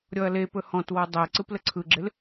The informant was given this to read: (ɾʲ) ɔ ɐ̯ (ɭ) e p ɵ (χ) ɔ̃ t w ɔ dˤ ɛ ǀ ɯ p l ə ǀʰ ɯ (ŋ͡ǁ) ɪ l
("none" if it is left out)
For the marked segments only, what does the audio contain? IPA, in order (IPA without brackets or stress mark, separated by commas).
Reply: ɾʲ, l, h, ɡ͡ǁ